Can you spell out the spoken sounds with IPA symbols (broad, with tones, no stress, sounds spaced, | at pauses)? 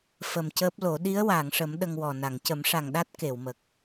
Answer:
f ə˨˩ m c əː˦˥ p̚ l o˨˩˦ ɗ i˧˥ ə̯ w aː˨˩˨ ŋ ʂ ə˨˩˦ m ɗ ə˧ ŋ w ɔ˨˩ n a˨˩˨ ŋ c ə˨˩˦ m ʂ a˨˩ ŋ ɗ a˦˥ t̚ k e˨˩˨ w m ə˨˩ k̚